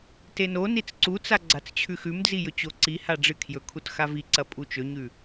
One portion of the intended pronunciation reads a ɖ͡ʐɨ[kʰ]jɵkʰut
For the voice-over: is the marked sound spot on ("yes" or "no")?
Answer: yes